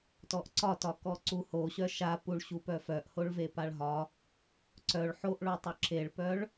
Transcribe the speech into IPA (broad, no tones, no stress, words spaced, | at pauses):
tɔʔǀɒtɒ kɔǀuhoɕœ ʃapuɭ ɕupœfœʔhoɭ vepaɭɦɒ | ǀœɭ ħoʔɭotˤœ ǁeɭpœɭ